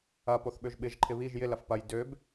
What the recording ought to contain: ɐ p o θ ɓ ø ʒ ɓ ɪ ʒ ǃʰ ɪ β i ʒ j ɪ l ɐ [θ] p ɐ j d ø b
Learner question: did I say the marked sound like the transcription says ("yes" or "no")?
no